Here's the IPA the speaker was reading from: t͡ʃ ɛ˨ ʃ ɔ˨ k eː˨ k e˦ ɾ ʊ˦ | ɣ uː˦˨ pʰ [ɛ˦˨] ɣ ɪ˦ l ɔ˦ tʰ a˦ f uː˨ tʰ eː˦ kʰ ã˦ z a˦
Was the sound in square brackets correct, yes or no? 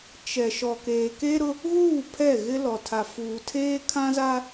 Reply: yes